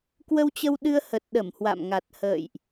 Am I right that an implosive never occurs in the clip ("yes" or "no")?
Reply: no